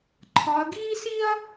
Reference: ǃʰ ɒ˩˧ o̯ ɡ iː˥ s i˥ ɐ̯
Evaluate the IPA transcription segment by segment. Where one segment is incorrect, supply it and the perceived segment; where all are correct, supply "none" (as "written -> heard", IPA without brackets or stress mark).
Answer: o̯ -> ɐ̯